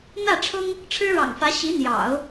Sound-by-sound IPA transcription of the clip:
n̪ ä˥˩ ʈ͡ʂʰ ʊ˥ ŋ | ʈ͡ʂʰ ɻ̩˥ ɻ ɑ̰˨˩ ŋ f ä˧˥ ɕ i˧˥ n̪ j ɑ̰˨˩˦ ʊ̯

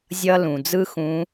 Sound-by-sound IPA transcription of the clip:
zʲ ʌ˧ l ũ˩ d͡z ɯ˥ x ũ˧˥

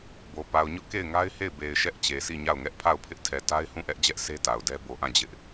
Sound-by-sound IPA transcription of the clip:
b o˨ p a˨ ʊ̯ ɲ ʊ˦ ʔ k e˦˨ ɪ̯ ŋ a˦ ɪ̯ h e˦˨ ɪ̯ b e˨ ɪ̯ ʃ ɛ˦ ʔ t͡ɕ e˨ s i˦˨ ɲ a˦˨ ʊ̯ ŋ ɛ˦ ʔ pʰ a˦˨ ʊ̯ pʰ ɪ˦ ʔ tʰ ɛ˨ t a˦ ɪ̯ h ũ˦˨ ʔ ɛ˦ ʔ d͡ʑ ɛ˦ ʔ s e˦ t a˨ ʊ̯ d ɛ˦ b o˨ ʔ ã˦˨ d͡ʑ ɪ˦ ʔ

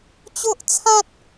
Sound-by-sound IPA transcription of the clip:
t͡ɕ o˦ ʔ t͡sʰ ã˦ t̚

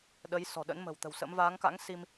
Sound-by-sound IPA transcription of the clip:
ɗ ə˨˦ j s ɔ̤˨˩ ɗ ə̰˧˥ n m ə̤˨˩ w t̪ ə̤˨˩ w s ə̰˧˥ m v aː˨˦ ŋ k a̰˧˥ ŋ s i˧ m

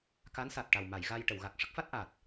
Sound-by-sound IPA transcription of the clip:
k a˧˥ n s a˨˩ t̚ ʈ a˨˩ w m a˨˩˨ j ɣ a˧ j ʈ ə˨˩˨ w ɣ a˨˩ k̚ ʂ ə˦˥ k̚ f a˦˥ t̚ ʔ a˨˩ t̚

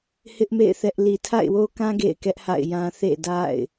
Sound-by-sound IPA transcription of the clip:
h ɪ˦ ʔ m ḛ˦˨ ɪ̯ θ ɛ˦ ʔ l i˨ tʰ a̰˦˨ ɪ̯ w o˦ k ã˦ ɡ ḛ˦˨ ɪ̯ k ɛ˦ ʔ h a̰˦˨ ɪ̯ j ã˦ θ ḛ˦˨ d a̰˦˨ ɪ̯

